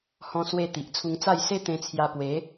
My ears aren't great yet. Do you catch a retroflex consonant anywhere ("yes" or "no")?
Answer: no